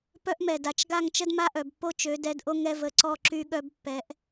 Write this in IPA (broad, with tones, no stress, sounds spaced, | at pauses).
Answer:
p œ˦ ʔ m ɛ˨ d a˨ t͡ʃ ɡ a˦˨ ŋ t͡ʃ ə˦ d m a˦ ʔ œ˨ b pː o˦ t͡ʃ ø˨˦ d ɛ˨˦ d ʔ o˦ ŋ ɛ˦ v ə˨ ǀ ɔ˦˨ ǁ y˦ ɠ œ˦ b pː ɛ˨˦ ʔ